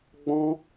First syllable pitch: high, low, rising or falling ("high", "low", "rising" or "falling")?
high